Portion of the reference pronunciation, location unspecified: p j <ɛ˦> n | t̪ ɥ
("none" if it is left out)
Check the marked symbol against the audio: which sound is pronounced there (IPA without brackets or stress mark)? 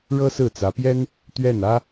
ɛ˥